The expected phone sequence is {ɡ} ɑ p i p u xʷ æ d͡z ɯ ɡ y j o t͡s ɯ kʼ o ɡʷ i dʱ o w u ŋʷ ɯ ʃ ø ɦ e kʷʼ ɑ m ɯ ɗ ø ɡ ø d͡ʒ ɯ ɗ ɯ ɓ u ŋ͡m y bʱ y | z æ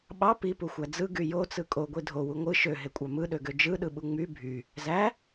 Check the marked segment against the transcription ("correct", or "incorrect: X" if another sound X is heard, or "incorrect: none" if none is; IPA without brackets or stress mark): incorrect: ɓ